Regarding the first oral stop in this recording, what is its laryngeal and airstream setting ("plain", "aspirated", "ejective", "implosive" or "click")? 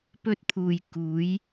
plain